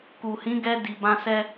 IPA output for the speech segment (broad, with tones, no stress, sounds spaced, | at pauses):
k u˨ h ĩ˨˦ ɡ ɛ˧ d i˨ b ã˧ s ɛ˧